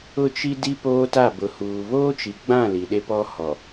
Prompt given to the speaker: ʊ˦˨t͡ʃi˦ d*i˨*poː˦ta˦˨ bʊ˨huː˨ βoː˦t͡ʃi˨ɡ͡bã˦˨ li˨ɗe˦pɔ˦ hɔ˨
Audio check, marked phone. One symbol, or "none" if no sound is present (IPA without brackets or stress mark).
i˦